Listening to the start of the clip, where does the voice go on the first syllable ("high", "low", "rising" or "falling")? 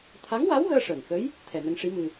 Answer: rising